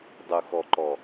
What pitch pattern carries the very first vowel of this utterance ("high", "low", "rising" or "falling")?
low